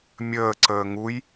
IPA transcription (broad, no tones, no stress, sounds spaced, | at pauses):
mʲ əː ǀ əː ŋ u j